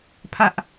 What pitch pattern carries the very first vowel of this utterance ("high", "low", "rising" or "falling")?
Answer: falling